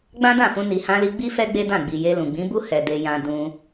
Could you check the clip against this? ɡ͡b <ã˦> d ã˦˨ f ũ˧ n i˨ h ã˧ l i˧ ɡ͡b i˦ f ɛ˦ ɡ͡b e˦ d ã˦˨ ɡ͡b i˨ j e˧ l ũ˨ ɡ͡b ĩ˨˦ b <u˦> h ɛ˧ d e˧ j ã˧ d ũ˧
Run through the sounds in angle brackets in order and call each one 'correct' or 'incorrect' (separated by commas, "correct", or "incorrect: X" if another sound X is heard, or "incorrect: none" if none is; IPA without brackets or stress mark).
correct, correct